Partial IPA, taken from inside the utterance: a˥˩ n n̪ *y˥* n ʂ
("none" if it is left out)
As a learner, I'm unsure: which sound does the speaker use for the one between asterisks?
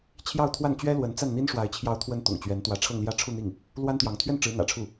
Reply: i˥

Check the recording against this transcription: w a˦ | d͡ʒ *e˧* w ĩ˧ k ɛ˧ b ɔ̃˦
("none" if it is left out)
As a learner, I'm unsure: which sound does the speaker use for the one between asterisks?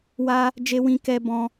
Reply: e˧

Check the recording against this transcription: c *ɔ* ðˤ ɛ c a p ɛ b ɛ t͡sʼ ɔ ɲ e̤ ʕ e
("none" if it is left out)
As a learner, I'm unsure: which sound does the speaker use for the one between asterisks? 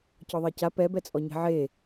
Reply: ɔ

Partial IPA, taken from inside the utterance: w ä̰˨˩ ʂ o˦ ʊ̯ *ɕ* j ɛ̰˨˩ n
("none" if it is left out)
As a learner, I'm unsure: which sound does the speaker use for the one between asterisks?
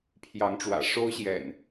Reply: ɕ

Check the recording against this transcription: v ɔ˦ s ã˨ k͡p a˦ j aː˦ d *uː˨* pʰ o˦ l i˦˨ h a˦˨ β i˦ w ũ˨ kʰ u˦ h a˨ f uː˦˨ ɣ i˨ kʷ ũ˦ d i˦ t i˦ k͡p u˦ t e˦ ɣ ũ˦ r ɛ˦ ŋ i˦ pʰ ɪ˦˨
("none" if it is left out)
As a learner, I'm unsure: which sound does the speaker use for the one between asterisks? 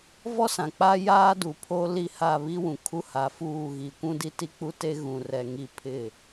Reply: u˨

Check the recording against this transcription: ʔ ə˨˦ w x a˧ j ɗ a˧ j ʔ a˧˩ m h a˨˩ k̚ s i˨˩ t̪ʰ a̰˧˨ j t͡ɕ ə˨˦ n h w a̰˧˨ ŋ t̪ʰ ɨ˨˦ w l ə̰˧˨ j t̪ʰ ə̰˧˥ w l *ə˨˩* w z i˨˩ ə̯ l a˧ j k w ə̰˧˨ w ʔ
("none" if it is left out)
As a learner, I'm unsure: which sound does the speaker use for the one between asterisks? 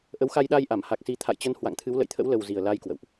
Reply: ə˨˩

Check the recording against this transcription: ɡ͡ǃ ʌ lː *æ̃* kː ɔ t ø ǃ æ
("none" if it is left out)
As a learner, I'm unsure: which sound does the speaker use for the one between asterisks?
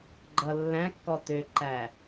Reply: æ̃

